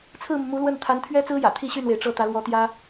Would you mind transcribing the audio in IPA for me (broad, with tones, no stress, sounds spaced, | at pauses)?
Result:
t͡sʰ ɹ̩˥˩ m u˩ m u˧˥ l w ə˥˩ n t̪ʰ a˧˥ n t̪ʰ ɥ ɛ˥ t͡s ɹ̩˥ j ä̰˨˩ t̪ʰ i˥˧ ɕ y˥˩ n w e˩ ɪ̯ ʈ͡ʂ ɤ˥˩ t̪ ä˧˥ l w ɔ˧˥ t̪ j ä˥